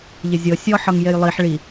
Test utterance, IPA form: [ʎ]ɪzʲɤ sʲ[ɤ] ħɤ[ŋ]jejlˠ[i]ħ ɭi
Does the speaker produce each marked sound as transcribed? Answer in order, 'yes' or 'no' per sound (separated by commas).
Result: yes, no, yes, yes